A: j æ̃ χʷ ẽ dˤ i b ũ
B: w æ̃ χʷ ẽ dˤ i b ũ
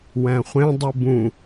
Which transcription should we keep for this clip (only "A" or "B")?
B